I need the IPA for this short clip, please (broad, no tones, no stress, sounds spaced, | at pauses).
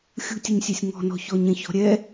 xʲ ṳ tʲ ɘ ɲ sʲ ɛ sʲ ŋ ɔ̤ n ɔ̤ ç ɔ ɲ ɛ̃ ç ɔ̤ ɾʲ ɛ